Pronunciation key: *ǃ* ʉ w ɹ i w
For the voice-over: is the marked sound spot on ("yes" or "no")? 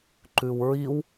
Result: yes